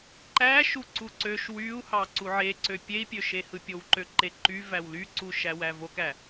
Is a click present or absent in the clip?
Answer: present